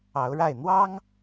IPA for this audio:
ɑ˨˦ ʊ̯ ɻ a˥˨ ɪ̯ n̪ w ɑ˦ ŋ

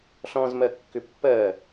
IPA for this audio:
ɬ ɔ̃ z m ɜ kː ʏ pː ɜ

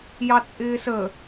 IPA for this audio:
j ɑ t͡sʼ ɪː s ə

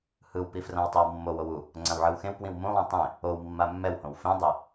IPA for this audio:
h ɯ w p i f r ã w tˤ i w mː o w o w u | ŋ͡ǀ ã w ʕ ɯ w x ẽ w p w ĩ w m ũ lˠ ũ tˤ ẽ | o w mː a mː ɛ w h õ w f ẽ dˤ i

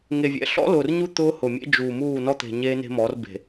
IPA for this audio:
ŋ e˨ vʲ ɛ̰˨ ɬ ɔ̰˦ l ʊː˨ r ɲ u˦ t̪ ʊː˦ h ʊ˨ mʲ ḛ˦ d͡ʒ uː˨ m uː˦˨ n ɔ˦ t̪ e̤˨ ɲ eː˦ n e̤˦ m ɔ˨˦ r b e̤˨

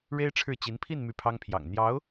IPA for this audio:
ɻ e˥ ɪ̯ ʈ͡ʂʰ ɻ̩˥˩ t͡ɕ i˧˥ n pʰ i˥˧ n m y˥˩ pʰ ɑ˥ ŋ pʰ j ɑ̰˨˩ ŋ n̪ j ɑ˧˥ ʊ̯

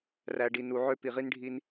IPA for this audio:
r æ˨ ɖ i˨ n u˨ ʕ ø˦ p i˨ ʁ i˦ n ɖʱ i˦ n

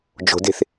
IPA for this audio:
d͡ʒ o̤ d e̤ θ

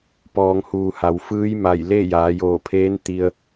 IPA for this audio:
p ɔː˩˧ ŋ h uː˩ h a˩˧ w f ɯː˧˥ j m a˧˩ j l e˥˨ j aː˩˧ j oː˧˩ pʰ eː˧˥ n t̪ i˧ ə̯

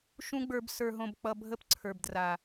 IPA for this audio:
ʃ ũ˦ ɡ͡b ə˞˧ b s ə˞˧ ɦ õ˧ b k͡p ʌ˧ bʱ ə˦ p ǀʰ ə˞˨ b d r a˨

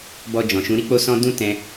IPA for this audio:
b ɔ˧ d͡ʒ ɔ̃˨ ʃ ũ˨˦ ɾ i˦ k͡p o˦ s ɔ̃˦ d ũ˦ t ɛ̃˧

